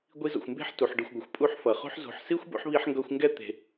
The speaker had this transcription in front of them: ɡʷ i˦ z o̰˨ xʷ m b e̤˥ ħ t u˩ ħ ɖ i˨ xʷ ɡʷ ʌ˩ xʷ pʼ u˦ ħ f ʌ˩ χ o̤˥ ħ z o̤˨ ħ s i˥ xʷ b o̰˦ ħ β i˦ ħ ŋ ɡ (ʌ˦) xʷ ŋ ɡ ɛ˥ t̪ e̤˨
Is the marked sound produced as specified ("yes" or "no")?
yes